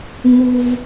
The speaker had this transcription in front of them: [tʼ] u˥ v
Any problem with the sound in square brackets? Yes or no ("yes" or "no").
yes